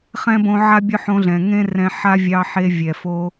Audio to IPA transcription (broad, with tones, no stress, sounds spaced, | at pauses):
χ ɛ̃˦ b õ˧ ʕ a˦ bʲ ʊ˦ ħ õ˧ ɮ ɛ̃˨ ŋ ẽ˦ r ɛ̃˧ ħ a˦ vʲ ɑ˧ ħ e˧ vʲ ɛ˨ f o˧